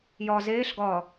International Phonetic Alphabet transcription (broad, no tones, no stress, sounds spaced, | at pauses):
j ɒ z eː ɬ ɡ ɒ